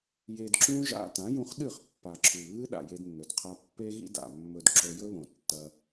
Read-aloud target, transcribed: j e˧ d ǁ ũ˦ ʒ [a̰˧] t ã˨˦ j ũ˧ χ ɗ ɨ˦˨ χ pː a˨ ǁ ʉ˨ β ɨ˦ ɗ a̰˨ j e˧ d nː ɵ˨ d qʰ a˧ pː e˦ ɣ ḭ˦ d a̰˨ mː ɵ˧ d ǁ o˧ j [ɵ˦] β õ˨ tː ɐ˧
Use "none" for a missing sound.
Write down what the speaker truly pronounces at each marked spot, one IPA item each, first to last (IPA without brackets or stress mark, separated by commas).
a̰˧, ɵ˦